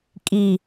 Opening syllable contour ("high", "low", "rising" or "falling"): low